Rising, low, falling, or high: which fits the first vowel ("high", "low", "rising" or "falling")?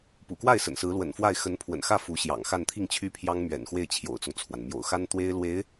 low